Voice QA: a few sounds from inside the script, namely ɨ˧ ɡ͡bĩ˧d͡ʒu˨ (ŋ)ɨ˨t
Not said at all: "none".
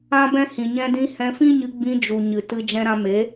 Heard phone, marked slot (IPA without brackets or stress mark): ɲ